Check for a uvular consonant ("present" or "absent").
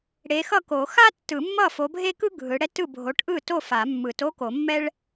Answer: absent